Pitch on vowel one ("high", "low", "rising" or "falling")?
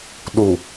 low